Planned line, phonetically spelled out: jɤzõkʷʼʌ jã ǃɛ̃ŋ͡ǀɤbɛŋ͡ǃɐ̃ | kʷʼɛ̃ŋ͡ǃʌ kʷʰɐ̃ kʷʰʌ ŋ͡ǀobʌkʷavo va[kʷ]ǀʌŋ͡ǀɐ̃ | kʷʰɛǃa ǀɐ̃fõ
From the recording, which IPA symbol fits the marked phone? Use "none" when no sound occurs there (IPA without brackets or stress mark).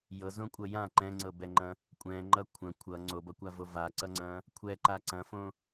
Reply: none